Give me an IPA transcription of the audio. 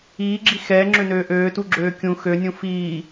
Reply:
iː ɡ͡ǁ i x ɛː ŋ͡ǁ ø n øː ʔ øː t u ɡ͡ǁ øː kʲ ũ x ø nʲ ũ f iː

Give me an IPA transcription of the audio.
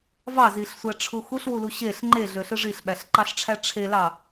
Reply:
v ɑ z i ɬ sʷ æ ʈ͡ʂʰ u x u ɬ w u l u ɕ e ɬ ŋ͡ǃ e ɮ ø ɬ ɯ ʐ i ɬ ɓ æ ɬ ǃ ɑ ɬ ʈ͡ʂʰ æ ʈ͡ʂʰ e l ɑ

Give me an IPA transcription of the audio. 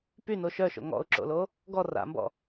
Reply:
p y n o ʃ œ ʃ o̰ ŋ ɔ̰ ʊ̯ ǁ o̰ l o | ɡ ɔ r a̰ m b ɔ̰

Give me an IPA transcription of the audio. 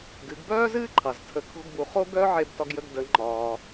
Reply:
ɡ ɨ˩˧ ɡ b œː˥ z ɨː˥ ǃʰ ɑ˩ z tʰ ə˩˧ kʰ o̤˧ ɡ b u˩ χ o˥ ɡ œ˥ ʕ e˧ b t ɒ˧ ɡ j ə˧ ɡ d ə˩˧ ŋ͡ǃ ɒː˩

